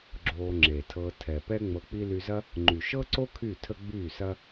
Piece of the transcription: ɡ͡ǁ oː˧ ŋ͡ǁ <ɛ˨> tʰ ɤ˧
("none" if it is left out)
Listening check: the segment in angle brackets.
e˨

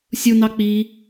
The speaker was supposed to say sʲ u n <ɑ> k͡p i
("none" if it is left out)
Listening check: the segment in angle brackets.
ɑ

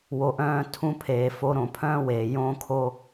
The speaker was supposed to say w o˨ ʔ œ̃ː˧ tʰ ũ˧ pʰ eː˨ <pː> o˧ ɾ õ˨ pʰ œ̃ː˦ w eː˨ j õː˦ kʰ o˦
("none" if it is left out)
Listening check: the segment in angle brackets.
f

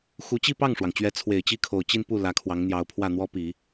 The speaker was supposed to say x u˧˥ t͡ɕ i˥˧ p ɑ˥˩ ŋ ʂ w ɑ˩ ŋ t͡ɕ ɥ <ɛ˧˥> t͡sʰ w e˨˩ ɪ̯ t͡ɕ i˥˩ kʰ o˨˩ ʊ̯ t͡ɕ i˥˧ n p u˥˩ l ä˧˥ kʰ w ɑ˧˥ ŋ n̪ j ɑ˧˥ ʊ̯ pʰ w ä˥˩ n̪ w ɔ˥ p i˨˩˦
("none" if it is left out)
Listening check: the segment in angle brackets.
ɛ˧˥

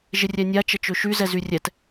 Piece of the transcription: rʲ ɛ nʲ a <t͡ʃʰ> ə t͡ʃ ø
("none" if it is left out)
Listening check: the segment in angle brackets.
t͡ʃ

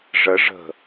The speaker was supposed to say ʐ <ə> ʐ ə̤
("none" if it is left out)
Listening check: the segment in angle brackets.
ə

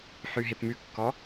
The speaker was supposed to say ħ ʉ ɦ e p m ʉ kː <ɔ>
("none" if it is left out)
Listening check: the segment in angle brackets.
ɔ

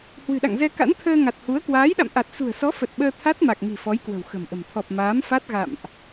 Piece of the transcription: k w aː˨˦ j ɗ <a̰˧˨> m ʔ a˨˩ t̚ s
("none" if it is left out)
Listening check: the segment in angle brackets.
a̰˧˨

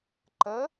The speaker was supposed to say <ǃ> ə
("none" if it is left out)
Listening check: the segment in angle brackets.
ǃ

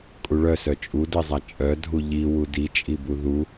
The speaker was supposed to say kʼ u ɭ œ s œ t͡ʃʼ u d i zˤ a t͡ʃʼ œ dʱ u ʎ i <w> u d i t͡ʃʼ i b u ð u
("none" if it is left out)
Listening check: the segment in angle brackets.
w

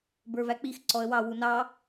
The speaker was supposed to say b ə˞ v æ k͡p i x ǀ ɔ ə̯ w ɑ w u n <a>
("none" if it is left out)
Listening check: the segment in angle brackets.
ɑ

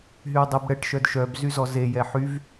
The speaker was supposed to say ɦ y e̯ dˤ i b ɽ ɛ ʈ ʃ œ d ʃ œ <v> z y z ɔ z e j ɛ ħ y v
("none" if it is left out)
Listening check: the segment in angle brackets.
b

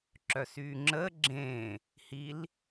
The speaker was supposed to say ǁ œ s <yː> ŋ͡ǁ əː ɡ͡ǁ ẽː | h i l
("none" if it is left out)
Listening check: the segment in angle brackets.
yː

